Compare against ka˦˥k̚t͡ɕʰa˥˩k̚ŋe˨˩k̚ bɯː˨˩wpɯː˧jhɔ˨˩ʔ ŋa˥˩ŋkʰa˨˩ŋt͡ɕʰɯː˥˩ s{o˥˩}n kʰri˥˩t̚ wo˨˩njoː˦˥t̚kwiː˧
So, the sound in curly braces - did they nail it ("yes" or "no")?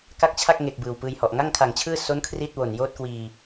no